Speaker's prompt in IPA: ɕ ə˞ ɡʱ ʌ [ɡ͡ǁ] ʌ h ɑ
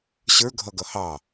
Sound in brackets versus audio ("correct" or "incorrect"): incorrect